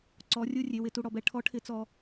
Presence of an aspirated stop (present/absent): present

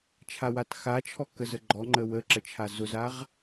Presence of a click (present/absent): present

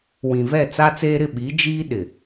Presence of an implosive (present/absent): present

